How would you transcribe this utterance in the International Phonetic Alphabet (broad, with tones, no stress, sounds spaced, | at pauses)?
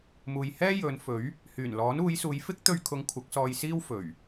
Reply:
m uː˨ j h ɛː˥ j ɵ˨˧ n f ɵ˨˥ ɥ | h yː˨˩ n l ɔː˨˥ n uː˨˧ j s uː˨˧ j f ɪ˥ k̚ t̪ ɵ˧ ɥ kʰ ʊ˨˧ ŋ kʷʰ ɐ˨˥ k̚ s ɔː˧ j s iː˥ w f ɵ˨˩ ɥ